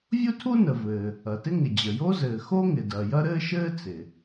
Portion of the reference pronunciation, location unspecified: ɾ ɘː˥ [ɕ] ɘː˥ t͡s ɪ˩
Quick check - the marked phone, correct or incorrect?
incorrect